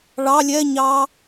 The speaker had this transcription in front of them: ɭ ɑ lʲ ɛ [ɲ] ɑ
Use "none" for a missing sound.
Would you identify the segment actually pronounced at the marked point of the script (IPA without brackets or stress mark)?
ɲ